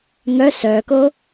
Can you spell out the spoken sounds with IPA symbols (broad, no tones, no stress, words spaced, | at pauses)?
ŋœ sœːko